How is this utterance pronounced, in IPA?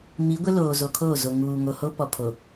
mi˨˦ɡʷɪ˦ loː˨zo˨kʰoː˦˨ zo˨ ŋuː˨ ŋo˨ho˦pɔ˨ pʰo˨

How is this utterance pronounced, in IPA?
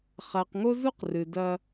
χa˨qŋo˦zu˦q rɨ˨dɐ˦

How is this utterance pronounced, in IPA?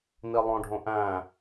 nilˠõɖʱõ ʔæ̃

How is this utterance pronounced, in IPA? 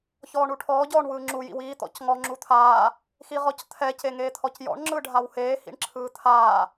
çɔːɳuʈʰɔː ɟɔːɳwɯːŋ͡ǁu jḭwiː t̪ɔ̰cŋɔ ŋ͡ǁut̪ʰaː | xiʁɔct̪ʰɛ ceŋeːt̪ʰɔcjɔ̰ɳ ŋ͡ǁɯɖʱawheː hḭɳǁʰɯːt̪ʰaː

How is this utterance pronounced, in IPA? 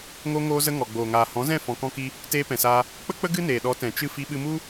ŋo˧ŋoː˧zə˧ ŋɔ˨ɡ͡boː˨ŋaː˨ hɔ̃˨˦zɛ̃˦˨ fɔ̃˨kɔ̃˧ki˧ | teː˧pɛ̃˨saː˧ | k͡pə˦k͡pə˦ ɡɨ˦neː˨ɗɔ˨˦ tɛ̃˨t͡ʃɨ˦ fi˧ɓɨ˧mu˦

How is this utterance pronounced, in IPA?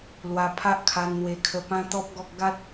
lwa˧pʰa˦ʔkʰa˧n n̪we˧kʰə˧pã˦ t̪ɔ˦p̚ɡɔ˦k̚ ɡa˦t̚

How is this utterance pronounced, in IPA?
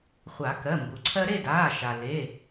χʷa˨˩˦kɜ˩˧˩mbu˩ǀʰɜ˦ ɾe˥˨daː˩˧˩ ʃa˩ le˩˧˩

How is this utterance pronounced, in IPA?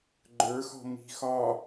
ɡ͡ǃə˞xɔ̤ mi̤ xɒ

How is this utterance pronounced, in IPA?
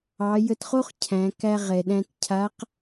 ɑ˩˧jə˧tχo˥χ cʰæ̃˩˧kæ˧ ʁɛ˩ ɗæ̃˧tcʰa˧˥q

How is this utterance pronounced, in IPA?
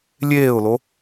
lʲeːʊ̯lo

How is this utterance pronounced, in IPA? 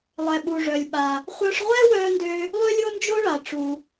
lˠɛ˩ɓu˩ʐœ˩lʲ ɓa˩ | χʷœ˧ʂʁʷɛ˥wœ˧ndø˧ | lˠø˥lʲo˥nd͡ʒo˥ɭa˩ ʈ͡ʂu˩

